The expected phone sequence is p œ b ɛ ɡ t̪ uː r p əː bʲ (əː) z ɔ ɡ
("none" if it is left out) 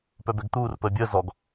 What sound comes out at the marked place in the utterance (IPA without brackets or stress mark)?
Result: əː